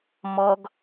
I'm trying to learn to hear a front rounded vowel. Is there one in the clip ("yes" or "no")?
no